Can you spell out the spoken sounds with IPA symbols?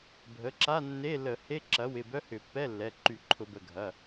bʱ ə˩˥ ǁ a˧˥˧ nː e˧˥˧ l ə˧˩˧ h e˧˥˧ ǁ ɐ˩˥ w ɪ˩˧˩ b œ˧˥˧ h ʏ˧˩˧ pː ɛ˧˥˧ lː ɛ˩˧˩ ǃ y˧˩˧ ǃʰ ʊ˧˩˧ b ə˩˧˩ ɡʱ ɐ˩˧˩

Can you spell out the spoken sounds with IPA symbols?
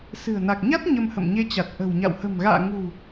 s ɨ̤˨˩ ə̯ n a˨˩ k̚ ɲ a˦˥ t̚ ɲ ə˧ m h ə̰˧˨ m ɲ e˧ t͡ɕ a˨˩ t̚ ʔ ə̤˨˩ w ɲ a̰˧˨ w h ə̤˨˩ m ɣ a̰ː˧˨ ŋ ṳ˨˩

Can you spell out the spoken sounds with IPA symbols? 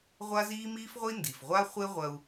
ʁʷ a˥ z iː˥ m iː˥ f ʁʷ i˥ n d i˩ f ʁʷ a˥ χʷ e˥ ʁʷ ɐ˧ u̯

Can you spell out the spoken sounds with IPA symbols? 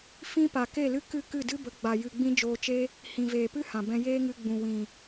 f ĩ˦ p a˨ k e˦˨ l ɨ˦ k ɨ˦˨ k ɨ˦˨ d ɨ˦ b ə˨˦ ɡ͡b a˨ j ɨ˨ ɡ͡b ĩ˦ d͡ʒ oː˧ t͡ʃ e˦ | h ĩ˨ v eː˨ p ɨ˦ h ã˨ b ɛ̃˧ j eː˦ ŋ ɨ˧ ɡ͡b ũ˨ w ĩ˨

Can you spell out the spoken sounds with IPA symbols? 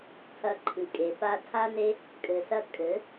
tʰ ɐ˧ ǃʰ ɨ˨ kʼ e˨ p a˧ tʰ a˦ n e˦ | kʼ ɘ˨ s ɐ˧ kʼ ɘ˨˦

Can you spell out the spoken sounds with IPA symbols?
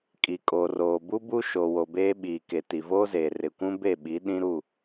kʼ i˨ kʼ o˨ r oː˨ b u˦ b u˦ ʃ o˨ w o˨ b eː˦ ɓ i˨ k e˨ t i˨ v oː˦ z eː˨ r ɪ˨ kʷ ũ˦ b e˦˨ ɓ i˨˦ ɗ ĩ˦ ɾ u˦˨

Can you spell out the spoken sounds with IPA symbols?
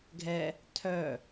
ɡʱ ɛ | tʰ œ

